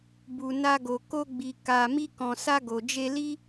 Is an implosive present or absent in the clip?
absent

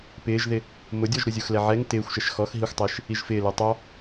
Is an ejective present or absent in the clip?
absent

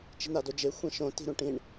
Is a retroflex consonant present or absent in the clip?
present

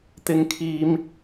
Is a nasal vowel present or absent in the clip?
absent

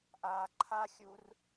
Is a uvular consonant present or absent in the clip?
absent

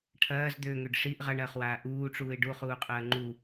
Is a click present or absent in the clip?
present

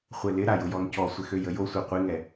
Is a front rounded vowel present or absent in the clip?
present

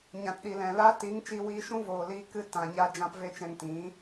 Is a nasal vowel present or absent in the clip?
present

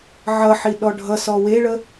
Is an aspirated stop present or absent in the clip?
absent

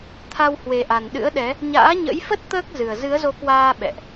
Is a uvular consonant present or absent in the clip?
absent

